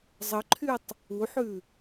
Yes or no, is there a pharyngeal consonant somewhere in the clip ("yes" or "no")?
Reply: yes